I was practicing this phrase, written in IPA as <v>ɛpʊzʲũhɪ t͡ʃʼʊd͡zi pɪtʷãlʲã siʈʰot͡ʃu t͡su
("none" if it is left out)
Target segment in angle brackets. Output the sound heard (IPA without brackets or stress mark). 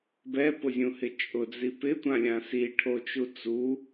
b